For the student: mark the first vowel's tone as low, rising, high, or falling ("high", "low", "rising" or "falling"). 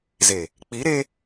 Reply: low